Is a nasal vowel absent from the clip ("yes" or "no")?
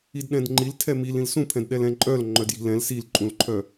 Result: no